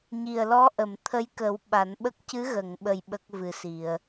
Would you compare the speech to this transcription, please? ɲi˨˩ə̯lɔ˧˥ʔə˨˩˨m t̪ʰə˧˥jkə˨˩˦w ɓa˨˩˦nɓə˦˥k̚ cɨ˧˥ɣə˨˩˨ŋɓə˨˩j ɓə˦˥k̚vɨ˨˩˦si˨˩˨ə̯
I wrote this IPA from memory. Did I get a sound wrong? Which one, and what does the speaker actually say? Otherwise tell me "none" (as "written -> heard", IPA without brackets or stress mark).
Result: none